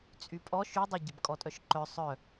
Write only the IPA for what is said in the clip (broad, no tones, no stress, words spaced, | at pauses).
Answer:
t͡sʼypʼɔ ʃydˤɐ ɟɪbkʼɔtʼœʃǃœ sˤœ